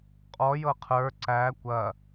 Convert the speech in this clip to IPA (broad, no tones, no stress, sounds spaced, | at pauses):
qʼ ɔ j ɤ qʰ ə˞ ǀ æ kʷ ɐ